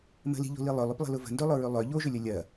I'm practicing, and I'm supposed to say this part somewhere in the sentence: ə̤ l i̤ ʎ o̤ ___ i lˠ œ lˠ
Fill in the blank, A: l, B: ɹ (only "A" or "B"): A